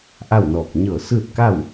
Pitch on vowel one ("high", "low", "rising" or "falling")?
falling